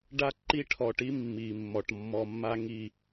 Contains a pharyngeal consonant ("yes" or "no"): no